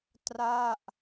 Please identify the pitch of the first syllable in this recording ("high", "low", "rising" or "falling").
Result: falling